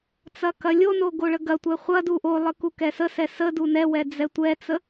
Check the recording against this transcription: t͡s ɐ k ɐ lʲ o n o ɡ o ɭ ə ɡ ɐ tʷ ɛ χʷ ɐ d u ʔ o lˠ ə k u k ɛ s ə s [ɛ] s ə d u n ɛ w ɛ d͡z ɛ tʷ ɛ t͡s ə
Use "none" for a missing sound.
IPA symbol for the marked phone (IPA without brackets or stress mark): ɛ